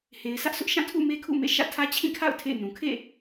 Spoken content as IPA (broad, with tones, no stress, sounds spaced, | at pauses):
h e˨ ɪ̯ s ä˦ ʔ sʰ ʊ˦ ʔ ʃ ã˦˨ tʰ ṵ˦˨ m e˦ kʰ ṵ˦˨ m ḛ˦˨ ʃ ä̰˦˨ tʰ ä˦ t͡ɕʰ ĩ˦˨ kʰ a̰˦˨ ʊ̯ tʰ ḛ˦˨ ɪ̯ n ũ˨ kʰ ḛ˦˨